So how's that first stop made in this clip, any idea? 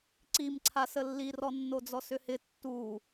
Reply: click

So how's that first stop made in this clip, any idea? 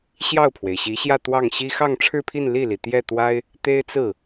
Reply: aspirated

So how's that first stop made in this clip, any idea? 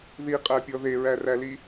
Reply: ejective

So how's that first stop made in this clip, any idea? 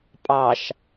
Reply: ejective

